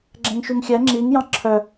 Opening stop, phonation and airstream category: click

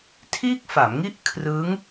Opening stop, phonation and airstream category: aspirated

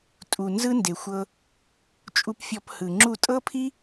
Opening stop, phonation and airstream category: ejective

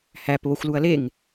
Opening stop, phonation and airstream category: plain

